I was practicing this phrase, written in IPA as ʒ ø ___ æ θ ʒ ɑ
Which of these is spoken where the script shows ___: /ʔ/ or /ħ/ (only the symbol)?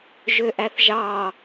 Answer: ʔ